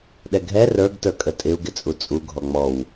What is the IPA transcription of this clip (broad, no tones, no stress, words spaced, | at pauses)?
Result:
ɗɛɡʱɛ rə˞ɡ tə˞kʼətʼɪu̯ ɡɪt͡sʼut͡sʼu ɡʱɔŋ͡mɔw